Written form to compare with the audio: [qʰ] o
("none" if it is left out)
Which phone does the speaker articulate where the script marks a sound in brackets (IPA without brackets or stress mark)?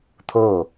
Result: t̪ʰ